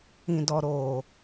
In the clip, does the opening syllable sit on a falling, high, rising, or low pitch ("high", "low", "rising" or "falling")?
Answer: low